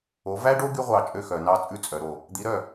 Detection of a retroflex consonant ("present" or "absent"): present